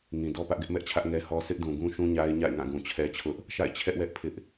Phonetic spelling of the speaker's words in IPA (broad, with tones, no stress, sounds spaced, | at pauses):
ŋ ĩ˨ d ɔ˦ p ä˦ ʔ ɡ ɛ˦ ʔ m ɛ˦ ʔ t͡ɕʰ ä˦ ʔ ŋ ɛ˦ h ɔ˦ sʰ ɪ˦ ʔ d ũ˨ ɡ ũ˦ ʃ ũ˦ ɲ a˦ ɪ̯ ɲ a̰˦˨ ɪ̯ ŋ ã˦˨ ɡ ũ˨ t͡ɕʰ ɛ˦ t͡ɕʰ ʊ˦ ʔ | ʃ a̰˦˨ ɪ̯ t͡ɕʰ ɛ˦ ʔ w ɛ˦ ʔ pʰ ɪ˦ ʔ